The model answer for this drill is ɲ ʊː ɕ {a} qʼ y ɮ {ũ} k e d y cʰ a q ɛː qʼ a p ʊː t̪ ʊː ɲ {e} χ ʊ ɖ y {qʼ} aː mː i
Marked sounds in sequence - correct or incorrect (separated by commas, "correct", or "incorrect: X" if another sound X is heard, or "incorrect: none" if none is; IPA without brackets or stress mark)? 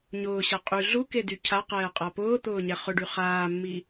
correct, incorrect: u, incorrect: ɛ, incorrect: χ